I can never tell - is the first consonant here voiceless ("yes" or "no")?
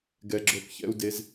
no